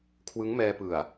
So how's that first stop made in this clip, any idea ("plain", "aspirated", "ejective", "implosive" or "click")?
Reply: aspirated